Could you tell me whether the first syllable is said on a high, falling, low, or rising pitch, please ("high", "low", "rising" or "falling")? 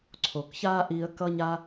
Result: low